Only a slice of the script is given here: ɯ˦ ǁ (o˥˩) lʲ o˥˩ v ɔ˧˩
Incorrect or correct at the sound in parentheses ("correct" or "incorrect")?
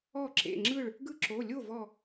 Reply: incorrect